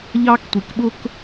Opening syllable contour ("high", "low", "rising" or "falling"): high